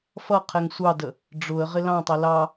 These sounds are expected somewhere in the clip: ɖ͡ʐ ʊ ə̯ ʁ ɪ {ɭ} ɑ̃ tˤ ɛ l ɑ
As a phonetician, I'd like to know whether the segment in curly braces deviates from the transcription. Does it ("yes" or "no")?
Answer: yes